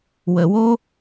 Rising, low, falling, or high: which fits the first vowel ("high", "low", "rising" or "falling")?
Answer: low